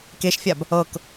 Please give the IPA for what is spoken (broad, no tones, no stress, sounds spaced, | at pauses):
k e ʃ fʲ a b | ɤ k